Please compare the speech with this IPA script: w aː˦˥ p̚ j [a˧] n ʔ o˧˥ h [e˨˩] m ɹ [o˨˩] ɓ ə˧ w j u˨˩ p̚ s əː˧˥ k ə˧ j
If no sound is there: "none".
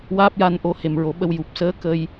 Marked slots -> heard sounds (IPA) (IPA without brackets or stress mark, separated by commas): a˧, e˨˩, o˨˩˦